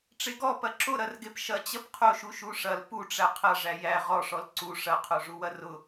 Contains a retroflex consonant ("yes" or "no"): yes